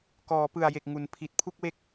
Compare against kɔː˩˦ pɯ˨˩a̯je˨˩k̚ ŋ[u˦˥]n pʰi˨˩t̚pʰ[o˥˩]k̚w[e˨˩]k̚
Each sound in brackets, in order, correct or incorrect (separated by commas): incorrect, incorrect, incorrect